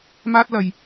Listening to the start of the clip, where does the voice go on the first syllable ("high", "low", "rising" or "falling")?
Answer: high